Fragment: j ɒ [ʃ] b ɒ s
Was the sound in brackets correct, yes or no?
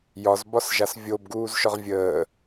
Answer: no